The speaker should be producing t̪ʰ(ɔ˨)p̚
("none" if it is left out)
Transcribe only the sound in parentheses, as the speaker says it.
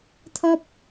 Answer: ɔ˦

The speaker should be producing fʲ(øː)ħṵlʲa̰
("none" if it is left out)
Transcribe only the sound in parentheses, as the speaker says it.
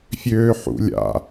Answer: øː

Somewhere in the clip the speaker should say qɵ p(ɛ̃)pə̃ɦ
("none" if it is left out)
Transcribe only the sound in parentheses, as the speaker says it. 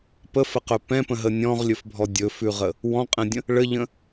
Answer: ɛ̃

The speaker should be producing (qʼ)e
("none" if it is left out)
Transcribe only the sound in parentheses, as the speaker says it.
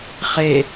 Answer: χ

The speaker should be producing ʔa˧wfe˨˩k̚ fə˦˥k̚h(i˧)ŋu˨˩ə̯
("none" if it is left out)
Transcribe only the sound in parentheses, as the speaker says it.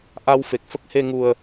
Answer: e˧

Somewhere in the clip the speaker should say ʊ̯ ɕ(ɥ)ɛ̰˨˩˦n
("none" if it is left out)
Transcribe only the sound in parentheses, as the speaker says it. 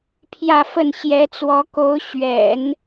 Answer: ɥ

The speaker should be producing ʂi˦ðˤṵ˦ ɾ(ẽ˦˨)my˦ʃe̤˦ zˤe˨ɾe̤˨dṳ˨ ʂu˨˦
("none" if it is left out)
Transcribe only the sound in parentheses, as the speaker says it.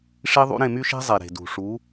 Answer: ẽ˦˨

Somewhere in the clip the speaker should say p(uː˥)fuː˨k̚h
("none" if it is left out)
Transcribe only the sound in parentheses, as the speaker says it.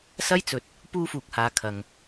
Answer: uː˥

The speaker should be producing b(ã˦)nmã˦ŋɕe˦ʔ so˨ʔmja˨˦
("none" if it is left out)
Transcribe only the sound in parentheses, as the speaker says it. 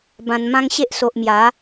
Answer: ã˧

